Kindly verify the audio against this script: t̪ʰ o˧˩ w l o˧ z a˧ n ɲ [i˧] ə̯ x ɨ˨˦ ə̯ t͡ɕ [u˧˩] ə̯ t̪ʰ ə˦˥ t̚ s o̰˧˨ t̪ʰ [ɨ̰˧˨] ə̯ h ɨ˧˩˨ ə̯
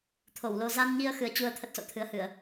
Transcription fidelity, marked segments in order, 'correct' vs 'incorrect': correct, incorrect, incorrect

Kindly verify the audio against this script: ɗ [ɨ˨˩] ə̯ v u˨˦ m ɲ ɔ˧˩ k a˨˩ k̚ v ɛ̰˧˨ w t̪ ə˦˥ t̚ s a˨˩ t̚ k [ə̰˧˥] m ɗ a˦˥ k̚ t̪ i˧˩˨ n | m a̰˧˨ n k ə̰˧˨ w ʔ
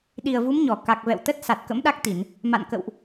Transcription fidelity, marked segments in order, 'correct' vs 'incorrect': incorrect, correct

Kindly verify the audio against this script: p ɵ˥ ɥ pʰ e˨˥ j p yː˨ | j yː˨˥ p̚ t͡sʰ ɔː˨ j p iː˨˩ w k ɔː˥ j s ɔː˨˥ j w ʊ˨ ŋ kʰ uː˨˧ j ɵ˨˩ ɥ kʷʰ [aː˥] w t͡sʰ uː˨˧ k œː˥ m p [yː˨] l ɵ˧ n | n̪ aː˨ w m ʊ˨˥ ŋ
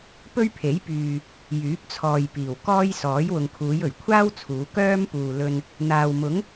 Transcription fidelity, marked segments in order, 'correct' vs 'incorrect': correct, incorrect

